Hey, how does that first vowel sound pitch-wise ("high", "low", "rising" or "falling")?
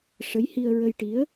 rising